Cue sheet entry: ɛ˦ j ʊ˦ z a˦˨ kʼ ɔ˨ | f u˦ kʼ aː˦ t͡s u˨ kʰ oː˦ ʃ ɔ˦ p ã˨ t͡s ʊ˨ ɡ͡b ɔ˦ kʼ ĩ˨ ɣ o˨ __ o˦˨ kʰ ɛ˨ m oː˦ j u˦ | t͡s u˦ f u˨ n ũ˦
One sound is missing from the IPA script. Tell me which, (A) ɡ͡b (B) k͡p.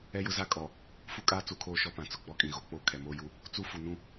B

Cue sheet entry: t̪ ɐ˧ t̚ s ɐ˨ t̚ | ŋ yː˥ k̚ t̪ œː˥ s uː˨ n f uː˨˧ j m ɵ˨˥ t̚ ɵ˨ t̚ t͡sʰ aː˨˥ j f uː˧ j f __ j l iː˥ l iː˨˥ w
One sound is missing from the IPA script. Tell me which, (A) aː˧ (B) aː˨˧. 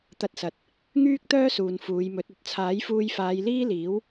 B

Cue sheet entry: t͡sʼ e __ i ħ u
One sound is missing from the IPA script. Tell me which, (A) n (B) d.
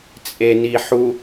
A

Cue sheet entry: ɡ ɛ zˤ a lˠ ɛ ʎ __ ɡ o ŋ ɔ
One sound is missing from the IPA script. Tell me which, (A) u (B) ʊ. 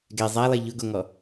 B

